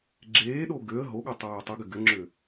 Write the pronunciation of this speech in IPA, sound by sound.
ɡ͡ǁ eː ɗ o ɡ ø ə̯ ɦ o ɠ o tˤ øː tˤ y ɡ ɘ ɡ ɘ ŋ͡ǁ ø

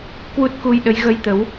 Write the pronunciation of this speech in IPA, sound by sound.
k w u˦˥ t̚ k u˧ j ɗ ə˨˦ j ɣ ə˧ j t̪ ə˨˦ w

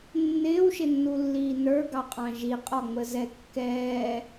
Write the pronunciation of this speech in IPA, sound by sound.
nː ɪː w ʃ ɪ nː u lː iː n ə˞ ɡ ɑ qʼ ɑ̃ ʒ i qʼ ɔ ŋ͡m ə z ɛ kː ɛː

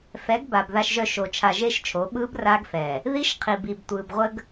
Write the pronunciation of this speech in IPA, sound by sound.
f ɛ˨˦ ɡ b a˨ b ð a˨ ʃ ʒ œ˨ ʃ o˨ t͡ʃʰ a˨ ʒ e˦ ʃ t͡ʃʰ o˨˦ ɓ ɯː˦ b r aː˦ ɡ f ɛː˨ | ð i˦ ʃ qʰ i˨ b i˨ b tʷ ɯː˨ b ʁʷ ə˦ ɡ

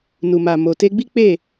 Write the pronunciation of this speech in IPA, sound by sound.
n u˨ m a˨ m o˨ t e˧ ɡ͡b i˦ k͡p e˦˨

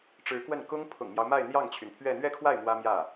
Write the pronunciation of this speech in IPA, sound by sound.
ʈ͡ʂ ɻ̩˧˥ k w ə˥˩ n k ʊ˥ ŋ pʰ ʊ̰˨˩ ŋ m j ɑ˦ ʊ̯ m a˥˧ ɪ̯ n̪ j ɑ˥˩ ŋ t͡ɕʰ y˩ n pʰ ɥ ɛ˥˧ n̪ ɥ ɛ˥˧ kʰ w a˥˩ ɪ̯ m w ä˥ m j ä˥˩

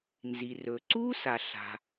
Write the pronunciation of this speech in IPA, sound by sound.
n z i˩ r ɵ˩ ǀ uː˥ s a˩ ɬ a̤˩

